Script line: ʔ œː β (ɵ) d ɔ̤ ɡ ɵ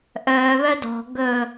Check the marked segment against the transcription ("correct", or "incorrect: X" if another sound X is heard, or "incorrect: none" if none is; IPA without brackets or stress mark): incorrect: œ